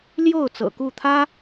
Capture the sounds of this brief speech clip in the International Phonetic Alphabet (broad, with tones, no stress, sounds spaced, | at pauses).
l j o˥˩ ʊ̯ t͡s ɤ̰˨˩ k u˥˩ t̪ʰ ä˥